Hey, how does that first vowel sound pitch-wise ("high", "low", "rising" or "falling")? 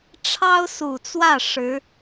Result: high